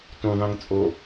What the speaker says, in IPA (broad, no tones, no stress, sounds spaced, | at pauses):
t ũ ðˤ ĩ ŋ t͡sʼ o